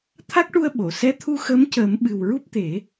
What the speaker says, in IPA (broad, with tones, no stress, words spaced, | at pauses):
t̪ʰa˦˥k̚ʈu˧ə̯ ɓo˨˩˨ sɛ˧˥t̪ʰu˧xəː˧˥mcəː˨˩˦m ɓɨ˨˩wɹu˦˥p̚t̪e˨˩˦